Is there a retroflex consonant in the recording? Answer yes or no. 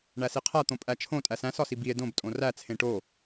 yes